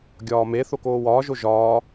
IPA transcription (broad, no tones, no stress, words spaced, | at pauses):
ɡʲɒːme θokoːwɒːʒo ʒɒː